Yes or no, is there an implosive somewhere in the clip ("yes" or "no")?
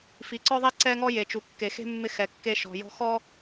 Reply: no